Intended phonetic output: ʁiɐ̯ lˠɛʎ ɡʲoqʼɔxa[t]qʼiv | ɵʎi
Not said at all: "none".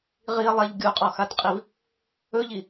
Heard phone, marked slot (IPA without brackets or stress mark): t